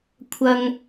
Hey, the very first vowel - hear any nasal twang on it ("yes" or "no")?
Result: no